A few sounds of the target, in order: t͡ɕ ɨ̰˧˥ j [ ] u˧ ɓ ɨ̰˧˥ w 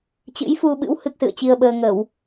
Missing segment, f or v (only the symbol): f